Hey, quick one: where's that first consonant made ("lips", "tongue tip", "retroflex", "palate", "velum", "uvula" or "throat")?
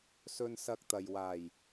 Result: tongue tip